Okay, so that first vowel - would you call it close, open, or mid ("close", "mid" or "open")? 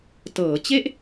mid